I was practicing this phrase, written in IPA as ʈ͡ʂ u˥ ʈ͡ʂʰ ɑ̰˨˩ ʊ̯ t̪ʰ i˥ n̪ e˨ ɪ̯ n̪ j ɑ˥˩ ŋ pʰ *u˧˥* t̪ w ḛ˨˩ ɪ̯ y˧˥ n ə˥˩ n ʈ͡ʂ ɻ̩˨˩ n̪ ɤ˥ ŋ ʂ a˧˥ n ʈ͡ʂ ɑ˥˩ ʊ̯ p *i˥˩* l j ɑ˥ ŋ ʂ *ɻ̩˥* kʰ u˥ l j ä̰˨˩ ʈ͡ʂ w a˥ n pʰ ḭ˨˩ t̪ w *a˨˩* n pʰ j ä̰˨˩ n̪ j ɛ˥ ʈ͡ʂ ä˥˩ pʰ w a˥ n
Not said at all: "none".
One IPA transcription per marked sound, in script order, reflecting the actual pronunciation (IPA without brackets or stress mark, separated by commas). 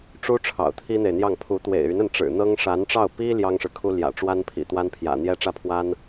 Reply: u˧˥, i˥, ɻ̩˨, a˥